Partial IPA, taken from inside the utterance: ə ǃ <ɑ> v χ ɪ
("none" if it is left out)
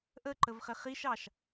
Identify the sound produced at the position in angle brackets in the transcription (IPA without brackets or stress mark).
ə